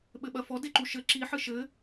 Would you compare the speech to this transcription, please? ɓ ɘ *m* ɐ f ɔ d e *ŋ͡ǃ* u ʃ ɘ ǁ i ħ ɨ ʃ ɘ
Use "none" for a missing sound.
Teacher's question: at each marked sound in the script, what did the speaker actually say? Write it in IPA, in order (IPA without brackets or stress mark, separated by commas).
ɓ, ǃ